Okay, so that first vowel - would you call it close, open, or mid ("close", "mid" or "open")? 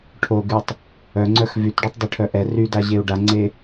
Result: mid